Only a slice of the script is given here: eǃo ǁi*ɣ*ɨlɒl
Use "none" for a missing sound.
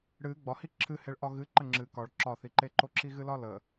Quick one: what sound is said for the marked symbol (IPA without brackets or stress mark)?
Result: ɣ